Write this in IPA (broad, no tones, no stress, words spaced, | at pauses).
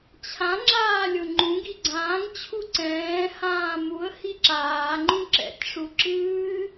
t͡ɕʰã ŋ͡ǁaːlʲʊŋ͡ǃũɡi ɡ͡ǀãːŋ t͡ɕʰuǀɛ̃ː hãːmuə̯ hiǁaːŋ͡ǃũ ǁɛ̰tʲʂuǁɨː